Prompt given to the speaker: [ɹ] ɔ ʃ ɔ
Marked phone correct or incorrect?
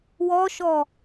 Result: incorrect